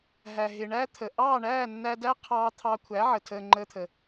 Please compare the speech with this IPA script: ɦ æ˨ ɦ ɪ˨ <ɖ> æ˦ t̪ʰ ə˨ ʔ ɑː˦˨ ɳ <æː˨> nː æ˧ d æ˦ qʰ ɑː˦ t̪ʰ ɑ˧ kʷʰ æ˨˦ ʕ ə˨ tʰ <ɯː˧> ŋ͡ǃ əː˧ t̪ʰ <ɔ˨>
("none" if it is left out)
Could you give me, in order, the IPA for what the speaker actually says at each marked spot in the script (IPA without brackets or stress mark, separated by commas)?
ɳ, æː˦˨, əː˧, ə˨